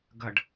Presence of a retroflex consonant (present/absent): present